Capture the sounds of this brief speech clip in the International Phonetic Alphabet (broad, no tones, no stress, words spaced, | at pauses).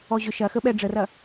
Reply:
ɔʑʏ ʃɐxəɓɛ ɖ͡ʐərɐ